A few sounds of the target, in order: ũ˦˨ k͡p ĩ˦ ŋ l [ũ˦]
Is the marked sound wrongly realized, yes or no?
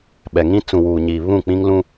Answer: no